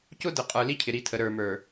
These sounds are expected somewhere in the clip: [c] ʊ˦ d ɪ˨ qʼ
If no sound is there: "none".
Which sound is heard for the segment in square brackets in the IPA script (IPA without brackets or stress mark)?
c